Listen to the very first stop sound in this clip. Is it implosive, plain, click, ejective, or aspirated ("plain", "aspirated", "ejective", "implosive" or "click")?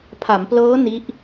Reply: aspirated